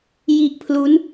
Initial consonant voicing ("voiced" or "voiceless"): voiced